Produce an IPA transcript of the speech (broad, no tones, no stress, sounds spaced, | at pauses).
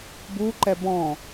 b u ǃ ɛ b ɔ̃